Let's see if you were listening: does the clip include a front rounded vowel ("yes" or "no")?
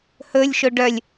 yes